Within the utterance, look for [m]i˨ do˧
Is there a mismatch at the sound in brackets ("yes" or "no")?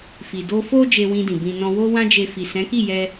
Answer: yes